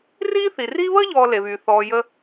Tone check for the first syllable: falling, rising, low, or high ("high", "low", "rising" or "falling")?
high